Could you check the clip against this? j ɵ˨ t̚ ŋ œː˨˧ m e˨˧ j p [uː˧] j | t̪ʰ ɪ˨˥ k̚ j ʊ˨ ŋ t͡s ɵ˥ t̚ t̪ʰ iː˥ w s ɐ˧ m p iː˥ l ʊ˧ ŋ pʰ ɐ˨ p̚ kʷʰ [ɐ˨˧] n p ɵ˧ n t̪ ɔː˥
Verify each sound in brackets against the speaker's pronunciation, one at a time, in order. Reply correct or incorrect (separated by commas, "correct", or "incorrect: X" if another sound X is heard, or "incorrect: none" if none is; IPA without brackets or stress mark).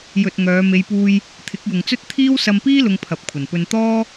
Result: correct, incorrect: ɐ˨˩